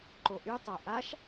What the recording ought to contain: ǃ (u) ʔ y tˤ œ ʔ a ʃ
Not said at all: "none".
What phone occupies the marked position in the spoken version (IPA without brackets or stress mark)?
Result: o